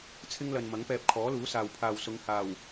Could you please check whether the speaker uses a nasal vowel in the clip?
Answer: no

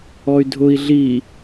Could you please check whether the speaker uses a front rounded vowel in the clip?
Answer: yes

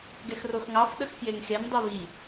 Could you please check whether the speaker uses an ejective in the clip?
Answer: no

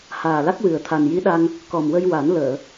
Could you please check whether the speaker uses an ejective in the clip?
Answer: no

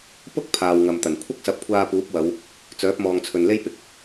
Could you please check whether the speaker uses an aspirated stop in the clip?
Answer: yes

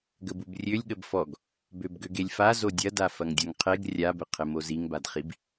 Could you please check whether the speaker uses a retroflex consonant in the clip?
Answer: no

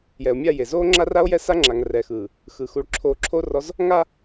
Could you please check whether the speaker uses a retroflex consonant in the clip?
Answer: yes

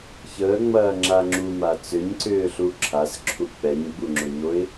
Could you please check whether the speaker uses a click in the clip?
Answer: yes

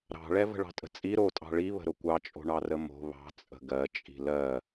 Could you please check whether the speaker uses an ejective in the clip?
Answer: yes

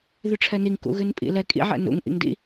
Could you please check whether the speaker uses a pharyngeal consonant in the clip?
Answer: yes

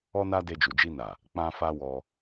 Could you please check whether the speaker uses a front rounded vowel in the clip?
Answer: no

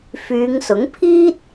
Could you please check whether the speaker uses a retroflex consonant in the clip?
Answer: no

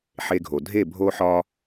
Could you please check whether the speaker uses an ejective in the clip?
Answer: no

